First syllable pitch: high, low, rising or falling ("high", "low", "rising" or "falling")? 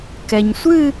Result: low